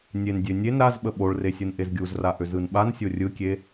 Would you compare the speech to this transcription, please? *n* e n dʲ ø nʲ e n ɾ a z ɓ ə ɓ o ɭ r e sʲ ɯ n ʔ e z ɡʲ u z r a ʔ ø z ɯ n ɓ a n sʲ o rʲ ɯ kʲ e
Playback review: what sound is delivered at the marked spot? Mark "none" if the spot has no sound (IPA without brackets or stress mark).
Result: nʲ